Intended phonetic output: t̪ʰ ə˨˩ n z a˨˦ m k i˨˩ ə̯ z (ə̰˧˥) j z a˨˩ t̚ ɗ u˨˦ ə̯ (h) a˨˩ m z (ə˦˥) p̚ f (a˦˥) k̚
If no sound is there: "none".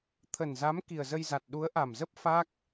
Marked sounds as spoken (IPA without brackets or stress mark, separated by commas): ə˧, ʔ, ə˦˥, a˦˥